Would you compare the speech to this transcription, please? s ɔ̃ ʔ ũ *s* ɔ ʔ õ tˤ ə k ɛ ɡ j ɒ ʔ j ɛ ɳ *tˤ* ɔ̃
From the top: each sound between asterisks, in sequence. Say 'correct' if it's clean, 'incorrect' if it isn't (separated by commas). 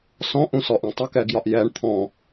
correct, incorrect